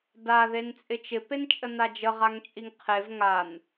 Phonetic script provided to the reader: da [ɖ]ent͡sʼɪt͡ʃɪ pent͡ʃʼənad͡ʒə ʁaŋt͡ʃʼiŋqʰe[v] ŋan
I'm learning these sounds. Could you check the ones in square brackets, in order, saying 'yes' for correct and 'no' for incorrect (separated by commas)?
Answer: no, yes